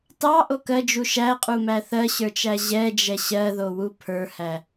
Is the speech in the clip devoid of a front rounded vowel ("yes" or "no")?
yes